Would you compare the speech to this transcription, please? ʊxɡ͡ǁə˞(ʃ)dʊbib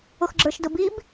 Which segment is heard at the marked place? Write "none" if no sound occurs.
ʃ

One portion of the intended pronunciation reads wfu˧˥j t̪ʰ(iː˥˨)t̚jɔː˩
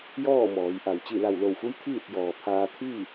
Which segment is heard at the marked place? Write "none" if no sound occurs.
iː˥˨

